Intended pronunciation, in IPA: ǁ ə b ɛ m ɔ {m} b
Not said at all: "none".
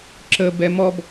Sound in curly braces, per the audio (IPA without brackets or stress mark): none